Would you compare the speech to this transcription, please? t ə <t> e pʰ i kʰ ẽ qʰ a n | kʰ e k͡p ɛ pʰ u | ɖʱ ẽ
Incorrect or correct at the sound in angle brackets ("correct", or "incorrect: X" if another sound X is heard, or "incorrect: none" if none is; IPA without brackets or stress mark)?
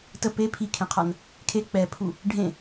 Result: incorrect: p